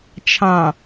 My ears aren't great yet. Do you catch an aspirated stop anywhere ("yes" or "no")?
yes